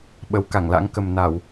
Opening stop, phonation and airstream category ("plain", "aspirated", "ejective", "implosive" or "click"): implosive